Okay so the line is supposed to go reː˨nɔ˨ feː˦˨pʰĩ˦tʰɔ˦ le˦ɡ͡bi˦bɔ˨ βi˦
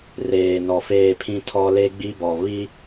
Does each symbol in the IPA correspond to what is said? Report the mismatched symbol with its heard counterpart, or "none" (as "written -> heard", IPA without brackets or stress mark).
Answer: none